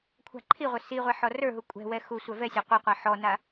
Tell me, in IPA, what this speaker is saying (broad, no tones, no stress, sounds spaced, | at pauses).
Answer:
kʷʰ a̤ ǃʰ i ʁʷ œ s i ʁʷ ɛ ħ ɔ r ə˞ ɦ u kʷʼ ɛ̤ w ɛ x u sʷ œ v ɛ sʲ a qʷ i qʷ a ħ ɔ n a